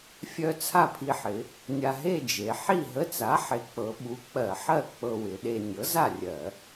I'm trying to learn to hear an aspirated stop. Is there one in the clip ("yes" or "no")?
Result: yes